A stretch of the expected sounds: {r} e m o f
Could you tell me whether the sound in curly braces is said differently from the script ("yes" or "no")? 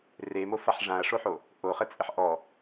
no